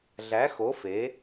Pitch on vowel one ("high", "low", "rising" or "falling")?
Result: rising